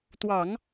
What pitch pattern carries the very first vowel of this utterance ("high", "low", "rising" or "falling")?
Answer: low